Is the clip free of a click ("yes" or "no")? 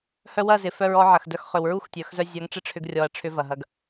yes